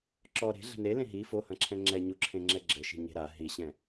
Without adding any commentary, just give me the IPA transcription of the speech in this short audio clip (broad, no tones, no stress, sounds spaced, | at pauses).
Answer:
ǁ ɔ ɾ e̤ ɮ ɛ̤ n e l ẽ ɦ i f o h ɐ̃ ǁʰ ɛ̃ ŋ͡ǁ ɛ ɲ u ǁʰ ẽ ŋ͡ǁ ɛ ɡ͡ǁ ɘ ʃ i̤ ɲ e̤ ɾ a ɦ i ɕ ɛ̃